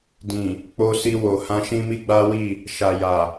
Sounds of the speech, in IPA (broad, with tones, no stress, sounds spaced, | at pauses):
d ĩ˨ | k͡p o˧ s i˧ w o˨ h ã˧ ʃ ĩ˦ m i˦ ɡ͡b a˦ w i˦˨ | ʃ a˨ j a˨